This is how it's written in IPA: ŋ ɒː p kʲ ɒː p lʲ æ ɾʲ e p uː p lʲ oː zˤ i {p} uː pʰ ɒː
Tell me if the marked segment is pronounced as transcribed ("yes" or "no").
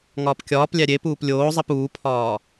yes